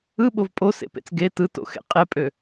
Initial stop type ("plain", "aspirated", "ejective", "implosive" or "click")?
implosive